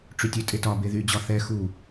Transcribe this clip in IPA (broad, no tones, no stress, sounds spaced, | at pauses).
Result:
ʈ͡ʂ y tʲ ø tʼ e t ɒ b e ð y d͡ʑ ɒ θ ɛ x u